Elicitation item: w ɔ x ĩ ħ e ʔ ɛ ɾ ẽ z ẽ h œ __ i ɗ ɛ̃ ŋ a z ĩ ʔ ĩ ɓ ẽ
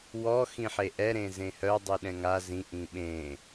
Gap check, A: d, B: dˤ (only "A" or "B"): B